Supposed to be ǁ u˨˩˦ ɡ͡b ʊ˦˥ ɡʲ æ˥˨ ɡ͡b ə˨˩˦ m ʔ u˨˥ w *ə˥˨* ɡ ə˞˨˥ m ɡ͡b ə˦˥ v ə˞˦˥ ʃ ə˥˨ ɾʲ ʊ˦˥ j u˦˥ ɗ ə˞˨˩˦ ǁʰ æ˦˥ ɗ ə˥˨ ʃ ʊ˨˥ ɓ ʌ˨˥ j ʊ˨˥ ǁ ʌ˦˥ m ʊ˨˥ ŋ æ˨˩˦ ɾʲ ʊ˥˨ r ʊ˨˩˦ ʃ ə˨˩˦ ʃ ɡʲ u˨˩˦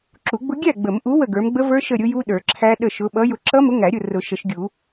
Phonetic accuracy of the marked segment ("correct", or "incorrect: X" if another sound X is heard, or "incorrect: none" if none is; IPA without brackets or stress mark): correct